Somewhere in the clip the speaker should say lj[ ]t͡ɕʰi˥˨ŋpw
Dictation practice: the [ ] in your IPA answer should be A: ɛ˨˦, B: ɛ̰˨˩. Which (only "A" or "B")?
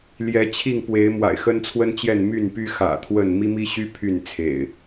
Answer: A